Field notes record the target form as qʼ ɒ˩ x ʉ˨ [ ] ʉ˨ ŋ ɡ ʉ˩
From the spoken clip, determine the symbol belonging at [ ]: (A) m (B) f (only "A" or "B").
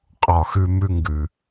A